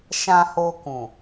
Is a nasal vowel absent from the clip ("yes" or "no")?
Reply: no